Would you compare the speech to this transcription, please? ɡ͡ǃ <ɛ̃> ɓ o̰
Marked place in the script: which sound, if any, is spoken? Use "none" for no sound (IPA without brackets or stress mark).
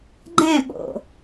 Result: ɛ̃